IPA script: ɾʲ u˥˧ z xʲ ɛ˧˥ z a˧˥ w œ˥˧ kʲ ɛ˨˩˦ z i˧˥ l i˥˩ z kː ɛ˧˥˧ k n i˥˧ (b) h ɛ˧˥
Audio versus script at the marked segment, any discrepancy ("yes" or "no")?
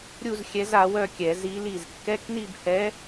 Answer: no